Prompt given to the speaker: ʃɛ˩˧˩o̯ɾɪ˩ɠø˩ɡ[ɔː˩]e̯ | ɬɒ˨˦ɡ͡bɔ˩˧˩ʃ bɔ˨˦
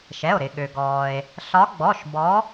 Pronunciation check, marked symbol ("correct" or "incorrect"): correct